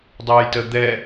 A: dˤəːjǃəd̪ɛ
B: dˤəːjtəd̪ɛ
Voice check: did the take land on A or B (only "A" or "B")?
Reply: B